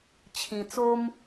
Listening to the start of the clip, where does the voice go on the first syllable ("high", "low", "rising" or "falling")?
low